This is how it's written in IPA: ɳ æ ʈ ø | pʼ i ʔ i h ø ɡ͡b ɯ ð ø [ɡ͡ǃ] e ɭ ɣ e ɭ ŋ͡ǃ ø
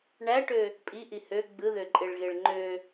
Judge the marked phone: incorrect: ǃʼ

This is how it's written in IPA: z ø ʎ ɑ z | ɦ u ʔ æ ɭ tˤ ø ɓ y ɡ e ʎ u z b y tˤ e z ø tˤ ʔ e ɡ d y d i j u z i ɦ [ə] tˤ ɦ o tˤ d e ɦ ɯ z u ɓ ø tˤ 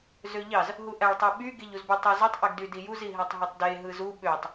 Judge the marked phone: incorrect: æ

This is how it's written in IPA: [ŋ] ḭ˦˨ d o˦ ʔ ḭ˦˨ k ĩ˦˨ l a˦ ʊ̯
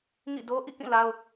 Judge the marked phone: correct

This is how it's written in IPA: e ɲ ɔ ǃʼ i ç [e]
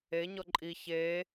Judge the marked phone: correct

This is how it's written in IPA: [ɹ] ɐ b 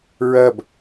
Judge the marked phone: correct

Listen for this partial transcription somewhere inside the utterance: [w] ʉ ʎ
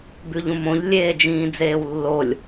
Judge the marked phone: incorrect: b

